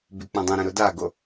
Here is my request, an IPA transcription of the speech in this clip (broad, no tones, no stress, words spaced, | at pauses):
byk͡pũdˤũɾɛ̃ ɾʊdaɡo